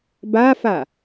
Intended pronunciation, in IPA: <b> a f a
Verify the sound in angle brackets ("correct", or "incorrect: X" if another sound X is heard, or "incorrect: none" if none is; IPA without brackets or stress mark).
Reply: correct